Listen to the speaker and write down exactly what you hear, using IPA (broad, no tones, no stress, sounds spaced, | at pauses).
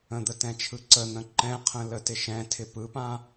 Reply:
ə̃ d̪ ə t ɛ̃ t͡ʃʰ ɯ ǀ ə n̪ ə̃ ǃ ɛ̃ qʰ ə̃ l ə t ɪ ʃ ɛ̃ tʰ ɪ p ɯ p ã